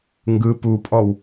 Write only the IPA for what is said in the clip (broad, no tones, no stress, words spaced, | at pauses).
ŋɡɯ pupʼɔw